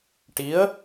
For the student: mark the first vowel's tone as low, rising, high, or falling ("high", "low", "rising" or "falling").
rising